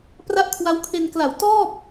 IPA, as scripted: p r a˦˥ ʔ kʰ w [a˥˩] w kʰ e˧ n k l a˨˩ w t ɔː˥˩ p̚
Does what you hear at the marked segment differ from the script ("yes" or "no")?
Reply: yes